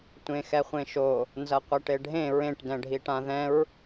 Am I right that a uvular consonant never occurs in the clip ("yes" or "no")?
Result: no